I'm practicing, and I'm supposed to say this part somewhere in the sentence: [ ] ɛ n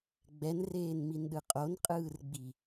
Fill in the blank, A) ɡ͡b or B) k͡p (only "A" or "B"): A